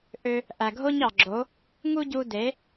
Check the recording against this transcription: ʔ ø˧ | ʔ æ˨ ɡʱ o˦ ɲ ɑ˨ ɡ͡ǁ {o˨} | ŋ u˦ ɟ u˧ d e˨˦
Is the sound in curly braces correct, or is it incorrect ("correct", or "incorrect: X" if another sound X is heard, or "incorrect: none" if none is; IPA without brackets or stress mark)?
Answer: incorrect: o˨˦